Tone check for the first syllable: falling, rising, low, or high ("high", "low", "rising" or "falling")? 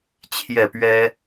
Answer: falling